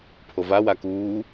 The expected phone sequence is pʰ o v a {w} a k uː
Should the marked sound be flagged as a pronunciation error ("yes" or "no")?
no